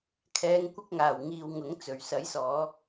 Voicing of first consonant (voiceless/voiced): voiceless